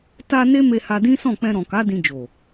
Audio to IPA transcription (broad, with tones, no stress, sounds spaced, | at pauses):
t a˧ n e˦ m e˧ h a˧ d ĩ˦ s ɔ̃˦˨ k͡p ɛ̃˧ ɾ ɔ̃˨ k a˨˦ d ĩ˧ d͡ʒ o˨